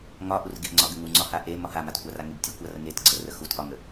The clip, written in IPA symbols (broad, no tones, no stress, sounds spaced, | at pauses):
ŋ ɒ ʔ u r ɡ e ʔ ŋ͡ǀ ɒ ɡ ə ŋ u ŋ͡ǀ ɒ h a ʔ e m ɒ h a m a t kʷ a r a ŋ e b tʲ u kʷ a r ə ŋ e t ɡ͡ǀ ə r ə x u t ʔ ɒ ŋ ə